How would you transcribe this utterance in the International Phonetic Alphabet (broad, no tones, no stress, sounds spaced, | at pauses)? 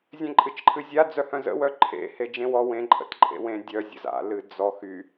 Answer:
zʲ ẽ ǃʼ ɨ t͡ʃ ǃʰ ɨ zʲ a d͡z œ h œ̃ z ə̰ w œ ǃʰ ḛ h e d͡ʒ ẽ w ɔ w ẽ ǃʼ ə̰ t ǃʼ ḛ w ẽ dʲ œ zʲ ə̰ z a̰ l ɨ d͡z ɔ x y